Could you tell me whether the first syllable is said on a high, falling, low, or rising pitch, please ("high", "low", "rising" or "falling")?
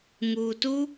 low